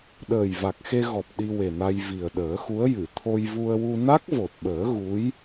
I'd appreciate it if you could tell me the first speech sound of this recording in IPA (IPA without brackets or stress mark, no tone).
ɗ